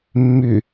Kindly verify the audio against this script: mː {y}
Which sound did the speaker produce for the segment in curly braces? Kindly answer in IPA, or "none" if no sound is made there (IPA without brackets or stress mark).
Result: y